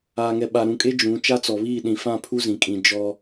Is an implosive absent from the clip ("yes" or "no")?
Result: no